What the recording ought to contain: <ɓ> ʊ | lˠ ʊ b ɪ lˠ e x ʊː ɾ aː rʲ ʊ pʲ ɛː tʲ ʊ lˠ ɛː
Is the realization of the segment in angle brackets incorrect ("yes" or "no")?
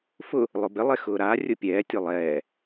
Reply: yes